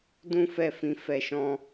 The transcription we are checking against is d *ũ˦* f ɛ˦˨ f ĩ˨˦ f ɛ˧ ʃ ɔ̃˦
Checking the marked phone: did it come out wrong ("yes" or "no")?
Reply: no